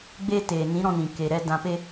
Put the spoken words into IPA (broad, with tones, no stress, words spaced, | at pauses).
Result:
ɡ͡be˦ teː˨nĩ˨˦ ɾɔ̃˧nĩ˨ ke˨ɾɛ˧ dã˧pe˦